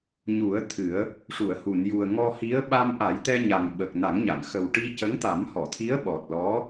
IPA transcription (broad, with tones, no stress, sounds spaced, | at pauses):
ɲ u˨˩˦ ə̯ t̪ʰ ɨ˨˩˦ ə̯ | ʂ u˨˩˨ ə̯ h u˨˩˨ n j u˨˩ ə̯ ŋ ɔ˧ h i˧˥ ə̯ ɓ a˧ m ʔ a˨˩˦ j t̪ ɛ˧ ɲ a˨˩ ŋ ɓ ə˨˩ k̚ n a˨˩˦ ŋ ɲ a˨˩˨ ŋ x ə˨˩ w ʈ i˧ c ə˧˥ ŋ t̪ a˨˩˦ m h ɔ˨˩˨ t̪ʰ i˧˥ ə̯ ɓ ɔ˨˩ t̚ l ɔ˧˥